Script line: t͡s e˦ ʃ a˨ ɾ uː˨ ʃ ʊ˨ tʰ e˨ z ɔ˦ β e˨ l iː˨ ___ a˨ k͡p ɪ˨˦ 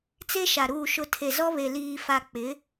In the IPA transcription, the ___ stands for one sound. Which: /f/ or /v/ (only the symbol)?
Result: f